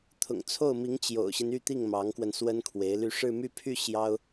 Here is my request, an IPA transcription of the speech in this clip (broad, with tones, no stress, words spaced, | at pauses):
t̪ʰʊ̰˨˩ŋt͡sʰo˥˩ʊ̯mi˧˥ŋ t͡ɕjo̰˨˩ʊ̯ɕi˦n y˥˧t̪i˥˩ŋmɑ˧˥ŋkwə˧n swə˥nkʰwe˧˥ɪ̯ly˥˧ ʂɻ̩˥˧my˥˧pʰy˥˩ ɕjɑ˥ʊ̯